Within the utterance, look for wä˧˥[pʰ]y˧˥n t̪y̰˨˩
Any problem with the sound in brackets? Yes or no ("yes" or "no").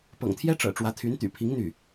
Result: yes